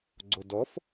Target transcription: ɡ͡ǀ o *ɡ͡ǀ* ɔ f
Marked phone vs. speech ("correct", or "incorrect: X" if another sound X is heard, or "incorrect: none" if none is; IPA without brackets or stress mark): incorrect: d